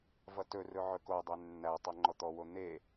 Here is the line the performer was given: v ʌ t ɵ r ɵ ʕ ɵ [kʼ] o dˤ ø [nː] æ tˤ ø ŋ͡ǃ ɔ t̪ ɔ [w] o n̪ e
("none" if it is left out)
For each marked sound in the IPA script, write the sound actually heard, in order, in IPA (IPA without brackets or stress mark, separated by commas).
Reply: k, nː, w